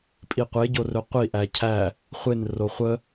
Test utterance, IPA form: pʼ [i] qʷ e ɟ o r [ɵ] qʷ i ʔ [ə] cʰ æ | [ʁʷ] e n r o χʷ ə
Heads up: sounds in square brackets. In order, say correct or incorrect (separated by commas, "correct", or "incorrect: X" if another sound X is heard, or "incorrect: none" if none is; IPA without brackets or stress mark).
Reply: correct, correct, incorrect: æ, incorrect: χʷ